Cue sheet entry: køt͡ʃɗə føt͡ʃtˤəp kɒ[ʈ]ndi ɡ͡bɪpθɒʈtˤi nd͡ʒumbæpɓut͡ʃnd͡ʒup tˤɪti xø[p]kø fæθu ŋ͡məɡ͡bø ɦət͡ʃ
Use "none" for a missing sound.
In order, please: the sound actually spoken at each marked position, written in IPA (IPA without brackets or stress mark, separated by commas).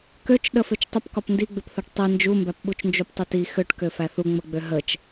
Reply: p, ʈ